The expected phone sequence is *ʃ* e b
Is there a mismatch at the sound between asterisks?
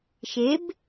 no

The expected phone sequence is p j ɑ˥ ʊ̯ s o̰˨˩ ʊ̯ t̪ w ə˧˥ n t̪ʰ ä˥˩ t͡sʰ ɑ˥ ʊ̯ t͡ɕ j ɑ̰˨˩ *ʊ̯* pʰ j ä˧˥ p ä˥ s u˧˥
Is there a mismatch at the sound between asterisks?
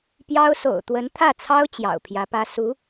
no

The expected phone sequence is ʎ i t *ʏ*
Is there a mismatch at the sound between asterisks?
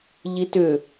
no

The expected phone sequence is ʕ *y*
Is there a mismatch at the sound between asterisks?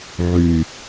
no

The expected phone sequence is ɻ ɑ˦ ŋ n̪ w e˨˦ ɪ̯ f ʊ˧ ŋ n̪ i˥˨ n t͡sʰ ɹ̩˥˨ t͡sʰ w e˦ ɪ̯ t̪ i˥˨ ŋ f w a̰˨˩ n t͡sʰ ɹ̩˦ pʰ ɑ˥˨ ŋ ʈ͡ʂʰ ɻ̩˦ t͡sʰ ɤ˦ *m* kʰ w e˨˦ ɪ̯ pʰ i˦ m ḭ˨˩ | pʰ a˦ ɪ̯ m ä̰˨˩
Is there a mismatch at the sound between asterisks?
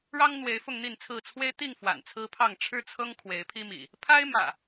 yes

